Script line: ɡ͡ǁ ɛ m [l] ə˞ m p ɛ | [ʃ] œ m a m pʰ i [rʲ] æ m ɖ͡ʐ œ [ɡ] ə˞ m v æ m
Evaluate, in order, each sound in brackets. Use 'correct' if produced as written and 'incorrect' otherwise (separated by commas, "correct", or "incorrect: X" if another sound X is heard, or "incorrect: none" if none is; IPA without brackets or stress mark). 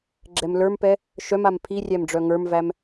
correct, correct, correct, incorrect: ŋ